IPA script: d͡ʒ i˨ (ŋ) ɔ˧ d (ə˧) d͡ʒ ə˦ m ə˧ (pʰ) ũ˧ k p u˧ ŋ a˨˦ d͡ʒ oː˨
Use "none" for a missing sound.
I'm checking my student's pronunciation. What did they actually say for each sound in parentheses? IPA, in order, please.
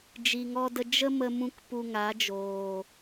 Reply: ŋ, ə˧, m

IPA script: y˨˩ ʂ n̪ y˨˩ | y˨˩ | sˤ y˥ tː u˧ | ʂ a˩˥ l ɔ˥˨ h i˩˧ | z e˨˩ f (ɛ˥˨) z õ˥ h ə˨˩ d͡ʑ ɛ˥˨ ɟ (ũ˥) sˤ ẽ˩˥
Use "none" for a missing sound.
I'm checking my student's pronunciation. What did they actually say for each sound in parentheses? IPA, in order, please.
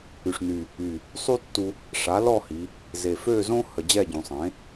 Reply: ø˥˨, ũ˩˧

